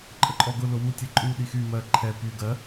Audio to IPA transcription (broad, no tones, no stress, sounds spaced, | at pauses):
ǃʼ ə ǃʼ ɔ ɡ ʊ l ʊ w u tʲ ɛ ǃʼ u ɗ i x y m ɜ ǃʰ ɛ p y ɡ ɜ